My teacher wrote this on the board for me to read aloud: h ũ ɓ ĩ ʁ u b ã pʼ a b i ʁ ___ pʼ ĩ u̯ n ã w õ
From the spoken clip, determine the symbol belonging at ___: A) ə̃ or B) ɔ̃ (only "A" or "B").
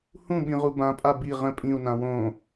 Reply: A